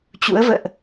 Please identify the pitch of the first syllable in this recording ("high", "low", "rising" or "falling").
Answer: rising